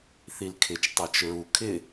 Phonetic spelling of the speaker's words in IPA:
θ i l kʰ ɪ t͡ʃ tˤ a t͡ʃ ɹ u kʰ ɪ

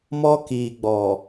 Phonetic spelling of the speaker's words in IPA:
m ɔ˦ k iː˨ ɡ͡b ɔ˨

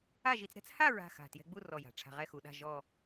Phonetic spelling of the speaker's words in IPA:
a˥˧ ʒ i˧ t͡s ɾ ɛ̤˥ t͡s h a˥˧ ɹ a̤˥˧ x a̤˧˩ t j ɛ̤˧ ɡ͡b u˥˧ r ɔ˧˩ j a̤˩˧ ʈ͡ʂʰ a̤˧ ʁ ɛ˥˧ x u˧ ɗ a̤˥˧ ʒ ɔ˥˧

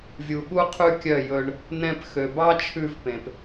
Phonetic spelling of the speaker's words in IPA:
vʲ u˨ ɠ u˧ qʰ ʉ˧ kʲ œ˦˨ j ɵ˧ ɳ | n ɛ̃˧ p x ø˨ b ɑ˦ t͡ʃʰ ʉ˧ v p ẽ˨ p

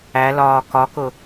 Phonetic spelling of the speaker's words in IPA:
æ l ɒː k ɒ k ʊ

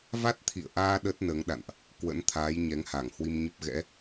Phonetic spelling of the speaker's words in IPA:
v a˦˥ t̚ t̪ʰ ḭ˧˨ ə̯ ʔ aː˧ ɗ ə˦˥ t̚ n əː˨˦ ŋ ɗ a̰˧˨ n ʔ | k w ə̰˧˥ n t̪ʰ aː˨˦ j ɲ ɛ˨˦ ŋ h a˧˩ ŋ h w i˧ m ɲ ə˦˥ p̚ ɣ ɛ̰˧˥

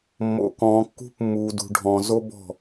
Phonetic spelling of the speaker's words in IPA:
mː o̰˧ k ɔ̃ː˧ kː ṳ˥ p mː uː˧ d ṳ˧ ɖʱ ɔ̃˧ z o˥ b ɔ̤˥˧

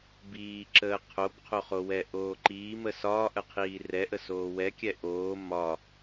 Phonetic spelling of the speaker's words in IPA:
b iː ǁ əː qʰ o b qʰ o χ o w ɛ ʔ oː ǃ iː m ə s ɒː ʔ ə qʰ iː r ɛ ʔ ə s oː w ɛ kʲ ɛ ʔ oː m ɒ

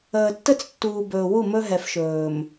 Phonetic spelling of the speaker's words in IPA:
əː˨ tː ə˦ t͡s tː uː˨ b ɵː˨ w u˦˨ m ɵ˦ ɦ ɛ˨ f ʃ ɵː˨ m

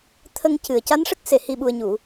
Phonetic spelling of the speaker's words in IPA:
t̪ʰ ə˧ ŋ c ɨ˨˩ ə̯ c a˧˥ n ʂ ə˦˥ k̚ s e˨˩ h i˨˩ ɓ u˨˩ ə̯ ɲ u˨˩˨

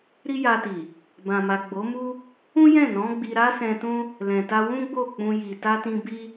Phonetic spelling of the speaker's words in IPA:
ɾ i˦ j a˧ t i˨ | b ã˨ m a˨ ɡ͡b o˨˦ m u˦ | ũ˦ j ɛ̃˦˨ n ɔ̃˨˦ ɡ͡b i˧ ɾ a˦ s ɛ̃˧ t ũ˦ | l ɛ̃˨ t a˧ w ũ˦ ɡ͡b o˦˨ k͡p ũ˧ j i˨ t a˧ t ĩ˧ b i˦

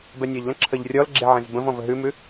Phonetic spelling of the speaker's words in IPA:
b ɛ nʲ ɤ ʎ l ə̃ ǁʰ ə ʎ rʲ ɔ l ɡ͡ǁ e ʕ ẽ z b ə̃ v ɔ̃ v ə ɦ ʉ m ʉ

